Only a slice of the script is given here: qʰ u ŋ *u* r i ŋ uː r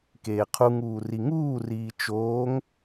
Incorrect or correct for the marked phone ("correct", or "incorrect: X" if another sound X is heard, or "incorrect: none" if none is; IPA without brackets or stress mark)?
incorrect: uː